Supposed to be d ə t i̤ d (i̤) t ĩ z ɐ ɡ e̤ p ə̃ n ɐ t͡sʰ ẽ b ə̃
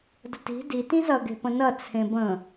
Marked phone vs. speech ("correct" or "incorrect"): incorrect